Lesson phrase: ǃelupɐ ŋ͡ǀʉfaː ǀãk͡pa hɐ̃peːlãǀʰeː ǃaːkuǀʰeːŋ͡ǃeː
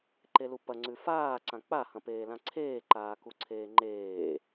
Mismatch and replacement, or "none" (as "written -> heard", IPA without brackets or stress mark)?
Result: none